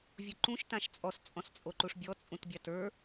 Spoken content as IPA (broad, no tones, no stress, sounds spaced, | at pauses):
vʲ u ǃ ũ ʃ t ã ʃ t͡sʼ ɔ s t͡sʼ ɔ̃ s t͡sʼ o ǃ u ʂ bʲ ɔ t͡sʼ ũ t bʲ a t ə˞